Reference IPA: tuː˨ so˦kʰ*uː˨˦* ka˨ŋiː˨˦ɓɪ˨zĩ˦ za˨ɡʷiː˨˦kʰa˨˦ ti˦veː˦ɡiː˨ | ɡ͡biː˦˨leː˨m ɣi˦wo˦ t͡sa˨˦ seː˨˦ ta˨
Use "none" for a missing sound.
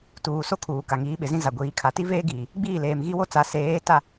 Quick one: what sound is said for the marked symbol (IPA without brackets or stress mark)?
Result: uː˨